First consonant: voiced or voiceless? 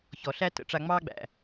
voiceless